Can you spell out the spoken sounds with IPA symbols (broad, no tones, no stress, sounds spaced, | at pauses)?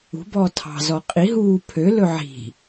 ṳ b ɔː tʰ ɑ̤ z ɔ qʼ i ɦ uː pʰ ø l ɵ ʕ i̤